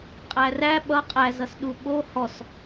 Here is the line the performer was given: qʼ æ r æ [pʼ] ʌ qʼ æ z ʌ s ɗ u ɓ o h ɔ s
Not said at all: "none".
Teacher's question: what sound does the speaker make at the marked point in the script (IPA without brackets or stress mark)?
ɓ